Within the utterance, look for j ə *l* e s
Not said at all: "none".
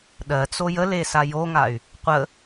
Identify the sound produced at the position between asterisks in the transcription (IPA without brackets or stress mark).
l